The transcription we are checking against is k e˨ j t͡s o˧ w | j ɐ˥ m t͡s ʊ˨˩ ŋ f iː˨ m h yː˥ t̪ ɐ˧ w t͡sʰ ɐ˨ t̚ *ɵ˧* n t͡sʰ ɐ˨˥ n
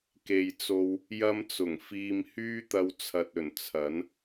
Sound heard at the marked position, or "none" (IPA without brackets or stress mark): ɵ˨˩